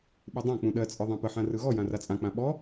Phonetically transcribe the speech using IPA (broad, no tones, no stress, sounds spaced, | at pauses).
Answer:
ɓ ɯ dˤ ã k͡p ũ ɗ ɜ t͡sʼ ɯ ðˤ ã p ə ħ ã r ɯ ɣ ɔ j ã r a t͡sʼ ã k͡p ã ɓ ɔ